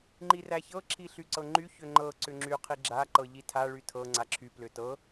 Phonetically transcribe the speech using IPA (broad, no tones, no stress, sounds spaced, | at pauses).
ŋ͡ǃ i r æ ç ɤ ǁʰ i ɬ y ǀ ɤ ŋ͡ǃ y ç ʏ ŋ͡ǃ ɤ ǀ ʏ ŋ͡ǁ y qʰ i ɡ͡ǁ a ǃ ɤ ʎ i tʰ a ɭ y tʰ ɤ ŋ͡ǀ a ǁʰ y p l ʏ t ɤ